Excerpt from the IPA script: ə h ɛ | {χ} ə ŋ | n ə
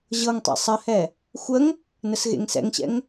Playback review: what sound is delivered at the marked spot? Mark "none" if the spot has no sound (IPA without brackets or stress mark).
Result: xʷ